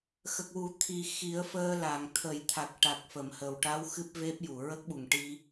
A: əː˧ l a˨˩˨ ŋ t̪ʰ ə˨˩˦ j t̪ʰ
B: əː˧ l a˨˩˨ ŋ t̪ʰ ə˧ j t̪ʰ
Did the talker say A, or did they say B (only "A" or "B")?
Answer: A